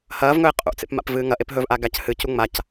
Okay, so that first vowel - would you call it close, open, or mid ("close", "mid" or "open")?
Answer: open